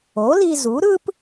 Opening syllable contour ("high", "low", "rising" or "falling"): rising